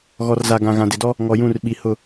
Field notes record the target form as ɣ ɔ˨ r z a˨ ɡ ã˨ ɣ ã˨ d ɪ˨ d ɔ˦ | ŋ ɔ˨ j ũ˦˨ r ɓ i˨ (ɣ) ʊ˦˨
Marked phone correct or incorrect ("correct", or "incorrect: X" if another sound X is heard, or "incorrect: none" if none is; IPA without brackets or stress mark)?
incorrect: h